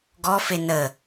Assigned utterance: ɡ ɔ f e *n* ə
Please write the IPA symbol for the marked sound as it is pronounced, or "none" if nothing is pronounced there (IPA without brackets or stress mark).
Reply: n